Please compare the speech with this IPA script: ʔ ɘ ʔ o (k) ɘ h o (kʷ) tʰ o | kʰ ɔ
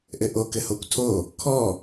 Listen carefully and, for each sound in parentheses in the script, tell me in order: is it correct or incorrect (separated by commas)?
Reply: correct, correct